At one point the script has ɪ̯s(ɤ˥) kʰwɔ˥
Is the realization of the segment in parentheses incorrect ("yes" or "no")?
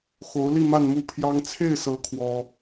yes